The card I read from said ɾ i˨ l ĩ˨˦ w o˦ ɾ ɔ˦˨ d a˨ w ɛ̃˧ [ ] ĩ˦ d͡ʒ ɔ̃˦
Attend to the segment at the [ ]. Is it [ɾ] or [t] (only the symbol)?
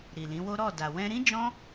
ɾ